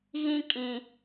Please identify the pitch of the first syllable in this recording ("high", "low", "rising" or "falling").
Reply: high